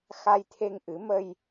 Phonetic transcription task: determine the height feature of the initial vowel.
low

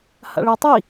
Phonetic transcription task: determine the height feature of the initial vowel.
low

